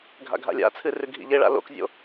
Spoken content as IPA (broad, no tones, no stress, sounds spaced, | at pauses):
ɡʱ a̰ ɡʱ a̰ lʲ a̰ t͡sʰ ɨ r ʉ ɡʱ ḭ ʎ e ɭ a̰ l o̰ k zʲ o̰